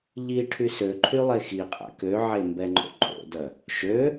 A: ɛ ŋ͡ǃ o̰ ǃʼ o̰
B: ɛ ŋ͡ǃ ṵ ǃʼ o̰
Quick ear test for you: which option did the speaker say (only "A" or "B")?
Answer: A